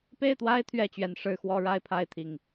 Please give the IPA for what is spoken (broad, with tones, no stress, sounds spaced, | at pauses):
p e˥˨ ɪ̯ t̪ w a˦ ɪ̯ t̪ʰ ɥ ɛ˥˨ t͡ɕ ɥ ɛ˨˩ n ʂ ɻ̩˥˨ x w ɔ˦ ɻ a˦ ɪ̯ pʰ a˥˨ ɪ̯ t̪ʰ i˨˩ ŋ